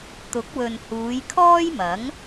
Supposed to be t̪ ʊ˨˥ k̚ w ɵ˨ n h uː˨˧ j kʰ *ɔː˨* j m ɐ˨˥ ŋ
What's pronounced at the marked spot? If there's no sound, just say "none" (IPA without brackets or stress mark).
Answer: ɔː˥